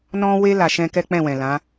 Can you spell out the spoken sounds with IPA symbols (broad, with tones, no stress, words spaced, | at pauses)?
nɔ̃˦we˦ la˧ʃɛ̃˦ kɛ˦k͡pɛ̃˦˨wɛ̃˨ lã˨˦